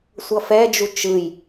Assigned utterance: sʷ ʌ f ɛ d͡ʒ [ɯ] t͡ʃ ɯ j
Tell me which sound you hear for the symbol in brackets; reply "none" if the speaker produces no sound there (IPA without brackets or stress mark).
u